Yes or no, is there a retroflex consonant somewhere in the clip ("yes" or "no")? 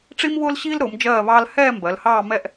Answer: yes